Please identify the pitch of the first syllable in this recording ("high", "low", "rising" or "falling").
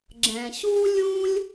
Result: low